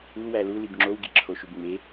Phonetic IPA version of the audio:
u w æ l u l i b ŋ͡ǁ o w ɡ i ǁʰ o ʃ u b ŋ͡m e

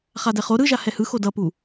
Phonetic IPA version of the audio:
χ a d ɛ χ o ɾ ɯ ʒ a h ɛ h ɯ x o d ʌ p u

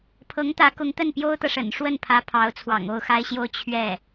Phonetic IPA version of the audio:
pʰ ɤ˧˥ ŋ t̪ ä˧˥ k ʊ˧˥ ŋ t̪ ə˥˩ n p j o˥ ʊ̯ t̪ ɤ˨ ʂ ə̰˨˩ n ʂ w ə˥˩ n pʰ ä˧˥ pʰ ɑ˧˥ ʊ̯ t͡sʰ w ɑ̰˨˩ ŋ o˥˩ ʊ̯ x a˥ ɪ̯ ɕ j o˥˧ ʊ̯ t͡ɕʰ ɥ ɛ˥˩

